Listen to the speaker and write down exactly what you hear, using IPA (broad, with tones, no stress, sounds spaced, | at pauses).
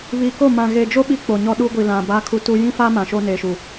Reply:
β i˨ k o˦˨ m ã˨ ɣ e˨ d͡ʒ o˦ ɓ i˦ k͡p o˨ ɲ ɔ˦ ɗ u˦ ɡʷ i˨ l ã˨ b a˦ kʰ u˦ t u˦ j ĩ˦ f a˦ m ã˨ ʃ o˦ n e˨ ʃ u˨